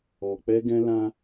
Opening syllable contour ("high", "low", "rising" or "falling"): low